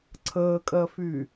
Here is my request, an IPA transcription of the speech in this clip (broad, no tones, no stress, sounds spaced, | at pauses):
ǀʰ əː kʼ ɜ f y